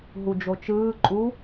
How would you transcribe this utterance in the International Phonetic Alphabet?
ɦ u d͡ʒ o t͡ʃ ɯː ǃʼ u

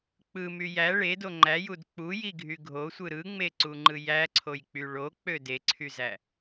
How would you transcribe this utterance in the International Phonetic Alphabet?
k͡p ɯ m y j æ ɭ e d o ŋ͡ǃ æ j u d k͡p u j i ɡʱ y ɡʱ o sʷ ɯ ɾ ɯ ŋ͡m e ǀ u ŋ͡ǃ ɯ j æ ǀʰ o j k͡p y ɭ o k͡p ø d e ǀʰ y z æ

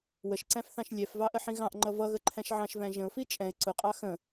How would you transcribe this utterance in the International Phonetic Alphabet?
w ə ʃ ǀ æ̃ f θ ɑ̃ ʃ lʲ ɛ f v ɑ ʔ ə ħ ĩ ɣ ɑ̃ ʔ ŋ͡ǃ ʌ v ʌ ɣ ə ǃʰ æ̃ ʃ ʕ ɑ̃ ʃ v æ̃ ʒ ə̃ ʊ̯ f i t͡ʃʼ ɛ̃ ɪ̯ ǀ ʊ qʼ ɑ x ə̃

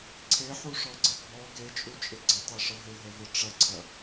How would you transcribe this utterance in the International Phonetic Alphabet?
ǀʰ e ħ u ʂ ɔ ɡ͡ǀ ɪ bʱ ɔ ɡ e t͡ʃʼ u t͡ʃʼ ɪ ɡ͡ǀ ɪ tˤ e ʂ ə ɦ ɪ ɦ ə v ɪ ʈ͡ʂ ɐ ǀʰ ɐ

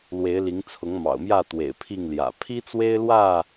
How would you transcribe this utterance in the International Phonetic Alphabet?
l w e˨˦ ɪ̯ l i˨˦ ŋ t͡sʰ ʊ˨˦ ŋ m ɑ̰˨˩ ʊ̯ m j ä˥˨ t̪ w ḛ˨˩ ɪ̯ pʰ i˥˨ ŋ l j ä̰˨˩ pʰ i˦ t͡s w e˦ ɪ̯ l w ä˥˨

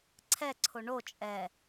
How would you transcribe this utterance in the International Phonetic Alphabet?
ǀʰ ɛ ǀʰ o ɳ o t͡ʃʼ ɛ

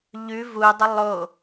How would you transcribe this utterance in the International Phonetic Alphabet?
ʎ ʉ v u dˤ ə lˠ o

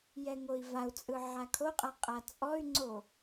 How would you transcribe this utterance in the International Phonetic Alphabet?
j ɛ ŋ o i̯ v a u̯ t͡sʼ ɯ ʕ a kʰ o qʼ a qʼ a t͡sʼ ɔ y̯ ŋ͡ǀ o

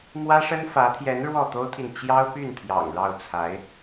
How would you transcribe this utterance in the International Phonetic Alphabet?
m w ä˥ ʂ ə˥ n f ä˧˥ t̪ʰ j ɛ˧˥ n ɻ w ɔ˥˩ t̪ o˥ ʊ̯ t̪ʰ i˨ n t͡ɕ j ɑ˥ ʊ̯ p y˥˩ n t̪ʰ j ɑ̰˨˩ ŋ ɻ ɑ˥˩ ʊ̯ t͡sʰ a˧˥ ɪ̯

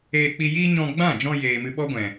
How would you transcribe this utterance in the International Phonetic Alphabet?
eː˧ k͡p i˧ j iː˦ ɲ ɔ̃˧ ɡ͡b ã˦˨ d͡ʒ ɔ̃˧ j eː˨ m ɨ˧ ɓ ɔ˦ ɡʷ ɛ̃˨

